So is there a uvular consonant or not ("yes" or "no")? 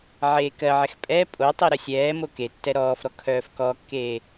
no